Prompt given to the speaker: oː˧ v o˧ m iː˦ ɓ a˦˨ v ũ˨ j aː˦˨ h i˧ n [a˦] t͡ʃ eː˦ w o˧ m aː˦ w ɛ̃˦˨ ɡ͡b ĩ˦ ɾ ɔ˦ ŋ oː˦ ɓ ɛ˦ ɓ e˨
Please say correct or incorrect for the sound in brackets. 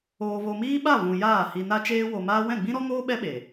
correct